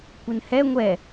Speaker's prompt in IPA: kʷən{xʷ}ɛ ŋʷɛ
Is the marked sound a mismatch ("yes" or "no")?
yes